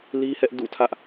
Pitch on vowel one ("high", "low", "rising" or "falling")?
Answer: high